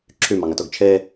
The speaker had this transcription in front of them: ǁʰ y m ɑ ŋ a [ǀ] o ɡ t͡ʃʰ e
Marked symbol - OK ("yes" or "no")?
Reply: no